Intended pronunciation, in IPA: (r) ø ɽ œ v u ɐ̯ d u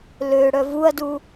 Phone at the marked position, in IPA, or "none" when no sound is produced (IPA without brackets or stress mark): l